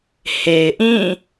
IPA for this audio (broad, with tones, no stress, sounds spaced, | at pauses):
h e˨ ɪ̯ ʔ ĩ˦˨